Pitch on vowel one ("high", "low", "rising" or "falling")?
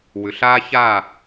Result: low